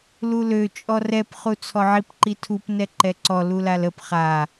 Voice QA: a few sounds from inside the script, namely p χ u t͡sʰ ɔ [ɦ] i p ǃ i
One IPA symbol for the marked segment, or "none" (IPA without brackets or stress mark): ʕ